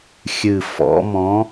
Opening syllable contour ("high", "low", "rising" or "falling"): low